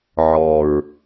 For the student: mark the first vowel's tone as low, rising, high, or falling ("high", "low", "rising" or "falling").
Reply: low